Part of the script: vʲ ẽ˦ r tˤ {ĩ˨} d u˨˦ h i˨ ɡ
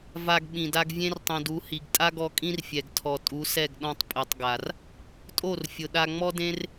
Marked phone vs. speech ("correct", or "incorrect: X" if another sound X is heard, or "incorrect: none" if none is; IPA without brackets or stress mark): correct